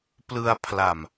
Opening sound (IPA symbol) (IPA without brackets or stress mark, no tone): p